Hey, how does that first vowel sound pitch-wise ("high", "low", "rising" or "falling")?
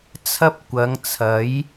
high